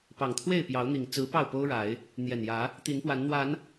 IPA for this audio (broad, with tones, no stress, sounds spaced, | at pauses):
p ɑ˨˩ ŋ t̪ʰ w e˥˨ ɪ̯ p j ɑ˨˦ ʊ̯ n̪ i˨˩ ŋ t͡s ɹ̩˨˦ p ɑ˥˨ ʊ̯ p o˦ ʊ̯ ɻ a˨˦ ɪ̯ | n̪ j ɛ˨˩ n j ä˨˦ | t̪ i˨˦ n p w a˨˦ n n̪ w a˨˦ n